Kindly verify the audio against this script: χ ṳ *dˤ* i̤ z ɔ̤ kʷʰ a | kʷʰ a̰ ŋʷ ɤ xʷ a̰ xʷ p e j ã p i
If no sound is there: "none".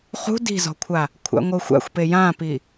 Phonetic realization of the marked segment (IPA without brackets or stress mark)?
d